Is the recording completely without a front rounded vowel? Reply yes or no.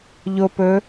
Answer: yes